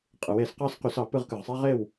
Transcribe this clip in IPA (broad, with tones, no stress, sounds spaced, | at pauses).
qʼ ɯ˩˧ w e˩˧ s q ɑ˥˨ s q y˧˩˧ s ɑ˩˧ p ɯ˥˨ ʁ k ɯ˨˩ ʁ sˤ æ˦ ʁ e˥˨ w